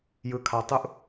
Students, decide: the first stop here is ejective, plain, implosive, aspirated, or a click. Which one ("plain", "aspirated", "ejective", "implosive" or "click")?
aspirated